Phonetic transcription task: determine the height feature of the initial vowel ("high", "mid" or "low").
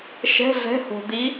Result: mid